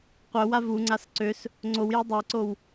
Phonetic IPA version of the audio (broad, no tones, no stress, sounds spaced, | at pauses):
qʷ œ w a v u ŋ͡ǀ a s ǀ ø s | ŋ͡ǀ o w j e dˤ e ǀ o w